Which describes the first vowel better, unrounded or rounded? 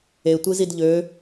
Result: unrounded